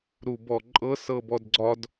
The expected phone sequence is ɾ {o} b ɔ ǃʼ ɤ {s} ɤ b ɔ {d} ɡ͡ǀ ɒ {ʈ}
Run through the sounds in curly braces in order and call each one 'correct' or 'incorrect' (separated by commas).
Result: incorrect, correct, correct, incorrect